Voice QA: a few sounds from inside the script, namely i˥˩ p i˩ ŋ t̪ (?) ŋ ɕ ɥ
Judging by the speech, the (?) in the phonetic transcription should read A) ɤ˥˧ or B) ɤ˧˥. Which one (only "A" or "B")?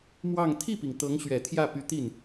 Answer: B